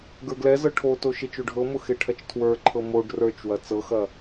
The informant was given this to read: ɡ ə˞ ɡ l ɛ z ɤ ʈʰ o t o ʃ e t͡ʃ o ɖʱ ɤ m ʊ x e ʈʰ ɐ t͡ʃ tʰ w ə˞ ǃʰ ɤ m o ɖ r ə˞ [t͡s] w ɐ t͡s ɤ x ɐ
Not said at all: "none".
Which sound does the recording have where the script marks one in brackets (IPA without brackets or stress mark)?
t͡ʃ